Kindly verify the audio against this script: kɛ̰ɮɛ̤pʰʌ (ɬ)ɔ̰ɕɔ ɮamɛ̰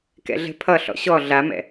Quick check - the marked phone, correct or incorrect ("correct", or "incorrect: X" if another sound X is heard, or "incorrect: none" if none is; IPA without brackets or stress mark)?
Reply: correct